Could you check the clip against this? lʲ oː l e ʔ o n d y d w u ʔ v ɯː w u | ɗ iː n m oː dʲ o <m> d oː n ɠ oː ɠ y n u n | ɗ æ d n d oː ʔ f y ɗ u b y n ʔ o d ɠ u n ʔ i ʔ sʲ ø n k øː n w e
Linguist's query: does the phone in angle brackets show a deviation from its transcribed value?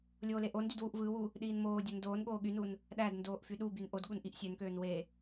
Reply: yes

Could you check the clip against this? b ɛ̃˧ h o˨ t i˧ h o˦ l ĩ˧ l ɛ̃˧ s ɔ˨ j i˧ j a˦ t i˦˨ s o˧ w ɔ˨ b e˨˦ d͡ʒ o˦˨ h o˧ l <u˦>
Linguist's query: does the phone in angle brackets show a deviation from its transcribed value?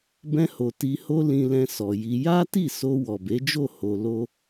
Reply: yes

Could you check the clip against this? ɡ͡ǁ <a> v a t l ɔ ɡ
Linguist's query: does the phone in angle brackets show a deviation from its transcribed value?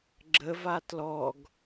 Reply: yes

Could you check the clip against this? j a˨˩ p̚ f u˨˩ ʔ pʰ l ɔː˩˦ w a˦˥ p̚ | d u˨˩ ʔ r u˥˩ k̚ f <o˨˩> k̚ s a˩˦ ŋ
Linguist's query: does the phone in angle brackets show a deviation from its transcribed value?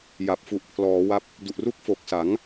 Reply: no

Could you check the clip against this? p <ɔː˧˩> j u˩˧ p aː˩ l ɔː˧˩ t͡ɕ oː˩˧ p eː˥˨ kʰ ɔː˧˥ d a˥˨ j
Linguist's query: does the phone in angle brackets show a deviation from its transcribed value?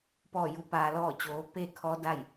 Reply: no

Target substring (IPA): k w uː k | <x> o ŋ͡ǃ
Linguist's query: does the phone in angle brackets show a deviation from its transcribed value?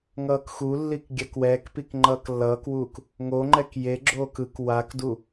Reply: yes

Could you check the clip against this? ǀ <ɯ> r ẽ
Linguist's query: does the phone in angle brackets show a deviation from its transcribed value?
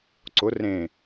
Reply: yes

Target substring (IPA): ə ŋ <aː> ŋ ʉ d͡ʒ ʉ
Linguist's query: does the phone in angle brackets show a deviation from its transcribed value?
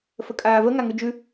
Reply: yes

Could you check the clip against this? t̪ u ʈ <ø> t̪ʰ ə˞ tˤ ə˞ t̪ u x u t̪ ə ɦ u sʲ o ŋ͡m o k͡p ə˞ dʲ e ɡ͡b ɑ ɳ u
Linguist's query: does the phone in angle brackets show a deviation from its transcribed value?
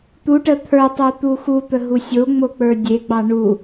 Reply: yes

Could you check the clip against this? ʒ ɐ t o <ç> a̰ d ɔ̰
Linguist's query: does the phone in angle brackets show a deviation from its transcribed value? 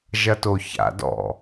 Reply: no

